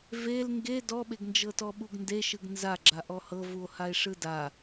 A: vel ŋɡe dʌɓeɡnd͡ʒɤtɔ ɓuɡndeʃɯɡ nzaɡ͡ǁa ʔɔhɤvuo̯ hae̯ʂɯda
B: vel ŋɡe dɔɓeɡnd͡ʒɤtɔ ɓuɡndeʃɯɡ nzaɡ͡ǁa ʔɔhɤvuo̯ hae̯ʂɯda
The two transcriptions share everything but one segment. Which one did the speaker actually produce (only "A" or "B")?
B